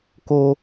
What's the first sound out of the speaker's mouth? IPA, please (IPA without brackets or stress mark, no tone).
k